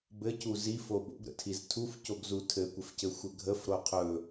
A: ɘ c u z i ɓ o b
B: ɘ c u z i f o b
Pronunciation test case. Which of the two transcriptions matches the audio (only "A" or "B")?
B